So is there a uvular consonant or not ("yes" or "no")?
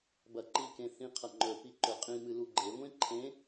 yes